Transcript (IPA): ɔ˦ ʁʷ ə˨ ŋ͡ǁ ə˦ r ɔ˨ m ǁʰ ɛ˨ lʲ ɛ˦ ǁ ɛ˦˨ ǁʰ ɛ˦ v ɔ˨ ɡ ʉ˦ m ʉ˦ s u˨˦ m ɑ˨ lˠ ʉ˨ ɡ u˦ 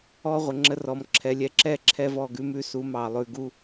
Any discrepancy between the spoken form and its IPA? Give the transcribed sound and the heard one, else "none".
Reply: none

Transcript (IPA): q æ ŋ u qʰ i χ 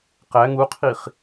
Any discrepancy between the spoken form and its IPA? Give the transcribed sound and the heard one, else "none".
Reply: none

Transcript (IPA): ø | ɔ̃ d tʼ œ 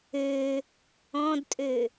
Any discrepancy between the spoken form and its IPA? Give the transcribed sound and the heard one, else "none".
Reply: œ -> ø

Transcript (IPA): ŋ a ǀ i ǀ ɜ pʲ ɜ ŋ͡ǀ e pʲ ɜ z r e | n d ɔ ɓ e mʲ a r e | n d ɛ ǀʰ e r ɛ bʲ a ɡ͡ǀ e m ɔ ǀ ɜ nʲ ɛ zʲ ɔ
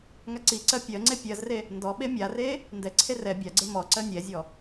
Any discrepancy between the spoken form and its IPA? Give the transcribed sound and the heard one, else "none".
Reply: none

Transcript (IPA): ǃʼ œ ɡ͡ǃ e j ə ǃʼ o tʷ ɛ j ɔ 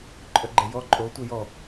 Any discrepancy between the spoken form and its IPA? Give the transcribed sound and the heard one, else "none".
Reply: ə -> ɔ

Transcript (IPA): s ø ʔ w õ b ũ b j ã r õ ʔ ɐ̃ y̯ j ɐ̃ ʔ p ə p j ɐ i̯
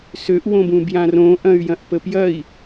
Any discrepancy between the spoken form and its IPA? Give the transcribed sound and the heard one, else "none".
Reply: none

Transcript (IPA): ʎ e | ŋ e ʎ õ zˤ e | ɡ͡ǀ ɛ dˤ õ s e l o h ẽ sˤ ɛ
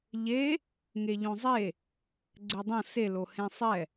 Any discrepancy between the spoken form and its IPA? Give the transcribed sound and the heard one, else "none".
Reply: none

